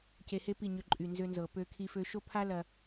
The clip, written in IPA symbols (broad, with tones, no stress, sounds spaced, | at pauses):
c e˧ h e˦ p i˦˨ ɲ ø˧ ǃʼ y˨ n z ø˧ n z ɤ˨ p ø˧ kʰ i˧ f ø˧ ʃ o˦ pʰ a˦ l ɐ˧